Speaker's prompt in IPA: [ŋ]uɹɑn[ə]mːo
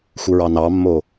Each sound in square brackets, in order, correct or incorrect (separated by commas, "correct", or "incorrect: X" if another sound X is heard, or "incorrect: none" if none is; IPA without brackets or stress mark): incorrect: x, incorrect: ɑ